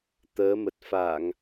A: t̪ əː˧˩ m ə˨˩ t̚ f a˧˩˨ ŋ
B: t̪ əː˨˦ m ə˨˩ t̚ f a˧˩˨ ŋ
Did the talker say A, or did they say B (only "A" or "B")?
B